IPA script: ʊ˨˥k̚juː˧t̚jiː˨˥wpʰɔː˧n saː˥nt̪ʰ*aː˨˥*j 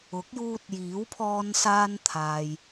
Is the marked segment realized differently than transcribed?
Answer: yes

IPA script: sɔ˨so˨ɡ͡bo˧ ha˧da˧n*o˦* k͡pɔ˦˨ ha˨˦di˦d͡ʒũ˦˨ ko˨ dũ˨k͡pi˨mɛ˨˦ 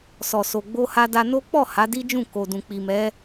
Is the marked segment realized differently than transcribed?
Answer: no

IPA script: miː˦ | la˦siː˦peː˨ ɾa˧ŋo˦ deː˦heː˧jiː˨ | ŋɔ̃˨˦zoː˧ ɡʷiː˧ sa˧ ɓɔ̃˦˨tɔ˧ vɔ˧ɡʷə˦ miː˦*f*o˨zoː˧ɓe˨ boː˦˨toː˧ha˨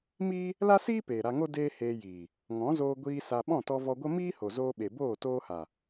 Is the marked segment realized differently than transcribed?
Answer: yes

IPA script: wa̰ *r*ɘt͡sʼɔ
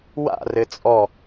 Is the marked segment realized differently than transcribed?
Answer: no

